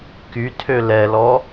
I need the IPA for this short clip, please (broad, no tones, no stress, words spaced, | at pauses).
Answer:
kytʰø lɛlɔ